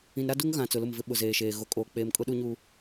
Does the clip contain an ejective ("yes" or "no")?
yes